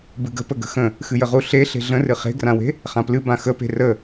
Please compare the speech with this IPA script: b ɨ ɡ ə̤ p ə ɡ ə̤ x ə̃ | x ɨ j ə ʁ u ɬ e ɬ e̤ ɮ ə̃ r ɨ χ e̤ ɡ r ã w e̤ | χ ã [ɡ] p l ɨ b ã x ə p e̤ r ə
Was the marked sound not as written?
yes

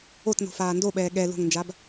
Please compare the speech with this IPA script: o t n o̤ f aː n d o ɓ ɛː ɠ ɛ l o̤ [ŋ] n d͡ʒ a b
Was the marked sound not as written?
no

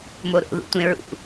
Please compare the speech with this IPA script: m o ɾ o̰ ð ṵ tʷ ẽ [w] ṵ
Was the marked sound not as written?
yes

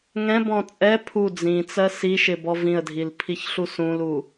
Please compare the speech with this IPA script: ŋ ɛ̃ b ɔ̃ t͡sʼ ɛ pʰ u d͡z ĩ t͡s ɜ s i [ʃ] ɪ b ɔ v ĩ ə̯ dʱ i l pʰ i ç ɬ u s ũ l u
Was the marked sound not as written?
no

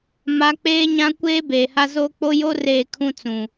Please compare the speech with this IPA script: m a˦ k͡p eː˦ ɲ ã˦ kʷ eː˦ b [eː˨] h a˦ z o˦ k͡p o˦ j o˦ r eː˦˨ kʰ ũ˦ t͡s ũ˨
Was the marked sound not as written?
no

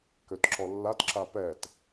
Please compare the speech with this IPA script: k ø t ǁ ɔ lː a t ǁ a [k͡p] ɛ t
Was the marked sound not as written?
yes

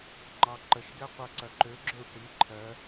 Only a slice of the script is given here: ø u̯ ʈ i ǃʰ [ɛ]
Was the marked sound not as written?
yes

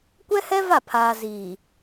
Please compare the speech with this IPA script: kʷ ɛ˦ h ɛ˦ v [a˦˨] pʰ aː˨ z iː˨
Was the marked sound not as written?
no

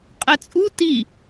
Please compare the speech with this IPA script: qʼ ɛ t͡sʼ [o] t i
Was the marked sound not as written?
yes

